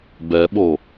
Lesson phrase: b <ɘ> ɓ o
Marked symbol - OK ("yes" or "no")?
no